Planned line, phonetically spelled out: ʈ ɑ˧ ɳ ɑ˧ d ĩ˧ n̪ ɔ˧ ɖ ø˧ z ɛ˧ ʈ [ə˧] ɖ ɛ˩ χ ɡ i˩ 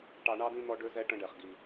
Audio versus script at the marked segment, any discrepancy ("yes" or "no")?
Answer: yes